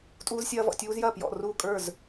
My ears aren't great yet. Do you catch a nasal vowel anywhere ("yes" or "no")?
no